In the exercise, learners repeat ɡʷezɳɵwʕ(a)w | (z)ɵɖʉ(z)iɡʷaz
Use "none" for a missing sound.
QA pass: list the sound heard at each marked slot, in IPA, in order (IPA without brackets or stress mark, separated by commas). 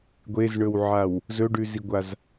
a, z, z